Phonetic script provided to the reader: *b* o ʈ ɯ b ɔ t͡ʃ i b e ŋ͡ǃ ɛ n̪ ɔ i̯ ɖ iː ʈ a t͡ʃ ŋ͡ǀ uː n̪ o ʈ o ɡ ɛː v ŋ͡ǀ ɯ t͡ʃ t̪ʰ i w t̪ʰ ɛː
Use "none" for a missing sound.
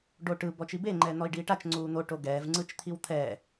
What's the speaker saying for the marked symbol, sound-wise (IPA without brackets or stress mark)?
ɖ